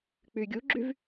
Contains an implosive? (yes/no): no